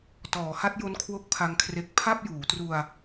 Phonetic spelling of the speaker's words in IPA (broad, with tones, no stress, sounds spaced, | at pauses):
t ɔː˩˦ h a˦˥ t̚ j o˦˥ n kʰ w o˦˥ k̚ pʰ a˦˥ ŋ kʰ r e˦˥ k̚ pʰ a˥˩ p̚ j uː˩˦ t r u˧ a̯